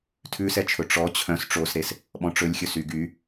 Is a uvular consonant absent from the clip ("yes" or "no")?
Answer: yes